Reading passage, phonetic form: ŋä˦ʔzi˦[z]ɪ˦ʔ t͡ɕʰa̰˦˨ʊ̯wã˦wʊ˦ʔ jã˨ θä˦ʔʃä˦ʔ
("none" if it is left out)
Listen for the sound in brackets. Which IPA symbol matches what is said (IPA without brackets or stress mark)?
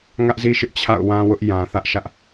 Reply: ʃ